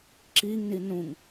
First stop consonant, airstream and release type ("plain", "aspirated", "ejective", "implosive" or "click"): click